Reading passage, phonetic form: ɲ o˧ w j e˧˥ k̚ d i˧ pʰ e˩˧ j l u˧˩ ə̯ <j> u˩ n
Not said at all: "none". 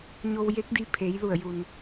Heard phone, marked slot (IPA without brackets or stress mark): j